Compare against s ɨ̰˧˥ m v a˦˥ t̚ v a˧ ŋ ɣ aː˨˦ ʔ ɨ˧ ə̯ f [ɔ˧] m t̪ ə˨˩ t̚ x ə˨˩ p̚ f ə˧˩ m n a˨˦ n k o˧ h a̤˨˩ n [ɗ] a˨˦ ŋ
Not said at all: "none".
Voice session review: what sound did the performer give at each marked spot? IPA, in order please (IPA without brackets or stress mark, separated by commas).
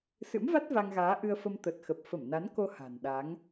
ə˧, ɗ